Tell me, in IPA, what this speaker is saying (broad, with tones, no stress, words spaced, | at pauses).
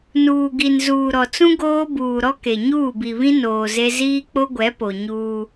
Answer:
nuː˨ɡi˨n zuː˨ɾɔ˨t͡sũ˦ ɡoː˦buː˨ɾɔ˦ ke˨ ɲuː˦˨bi˨βĩ˦ noː˨ze˦ ziː˦k͡po˦ɡʷɛ˨˦po˨ ɲuː˦